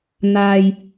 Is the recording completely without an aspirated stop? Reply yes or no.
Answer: yes